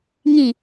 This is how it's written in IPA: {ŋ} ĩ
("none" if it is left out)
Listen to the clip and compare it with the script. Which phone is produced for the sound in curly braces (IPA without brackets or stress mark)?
ŋ